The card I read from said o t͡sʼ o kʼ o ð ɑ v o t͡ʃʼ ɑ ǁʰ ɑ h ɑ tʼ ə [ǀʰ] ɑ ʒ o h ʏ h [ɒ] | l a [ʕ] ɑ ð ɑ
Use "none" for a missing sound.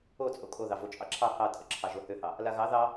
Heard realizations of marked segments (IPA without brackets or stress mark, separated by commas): ǁʰ, ɑ, ɣ